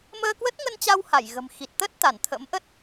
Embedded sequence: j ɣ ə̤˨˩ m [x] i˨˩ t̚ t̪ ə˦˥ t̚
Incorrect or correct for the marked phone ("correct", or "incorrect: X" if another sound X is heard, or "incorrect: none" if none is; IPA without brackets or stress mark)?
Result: correct